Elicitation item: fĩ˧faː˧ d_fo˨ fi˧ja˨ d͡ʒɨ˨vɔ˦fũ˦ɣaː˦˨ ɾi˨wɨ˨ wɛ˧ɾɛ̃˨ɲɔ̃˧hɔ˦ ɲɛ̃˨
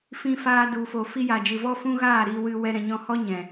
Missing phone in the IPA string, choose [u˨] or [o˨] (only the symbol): u˨